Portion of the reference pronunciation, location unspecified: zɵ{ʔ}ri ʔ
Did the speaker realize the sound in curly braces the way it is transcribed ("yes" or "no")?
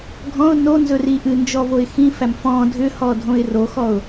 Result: no